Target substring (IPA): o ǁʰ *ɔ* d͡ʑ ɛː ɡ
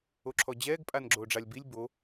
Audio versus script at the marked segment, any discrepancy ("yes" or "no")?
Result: no